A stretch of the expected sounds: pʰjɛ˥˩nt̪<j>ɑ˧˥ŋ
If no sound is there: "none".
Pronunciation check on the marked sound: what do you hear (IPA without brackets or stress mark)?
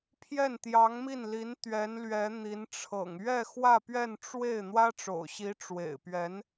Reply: j